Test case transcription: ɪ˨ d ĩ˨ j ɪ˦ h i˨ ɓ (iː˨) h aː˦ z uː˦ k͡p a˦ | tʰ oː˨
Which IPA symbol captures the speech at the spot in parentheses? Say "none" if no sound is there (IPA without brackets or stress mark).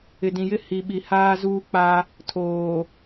i˨